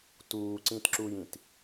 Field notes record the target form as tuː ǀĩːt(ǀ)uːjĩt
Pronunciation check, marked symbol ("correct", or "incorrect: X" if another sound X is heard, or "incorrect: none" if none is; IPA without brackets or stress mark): incorrect: ǁ